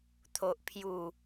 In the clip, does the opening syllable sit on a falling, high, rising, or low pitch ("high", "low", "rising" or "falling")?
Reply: low